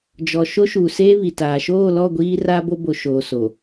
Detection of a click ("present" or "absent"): absent